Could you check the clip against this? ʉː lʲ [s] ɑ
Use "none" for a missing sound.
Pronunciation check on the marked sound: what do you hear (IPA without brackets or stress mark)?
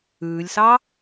s